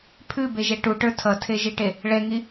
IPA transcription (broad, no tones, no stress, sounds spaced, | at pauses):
pʰ ʉ b e ʒ ɛ ʈ u ʈ ə˞ tʰ ʌ tʰ e ʒ i ʈ e | ɭ ɛ ŋ i